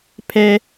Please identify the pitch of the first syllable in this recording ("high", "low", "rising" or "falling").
high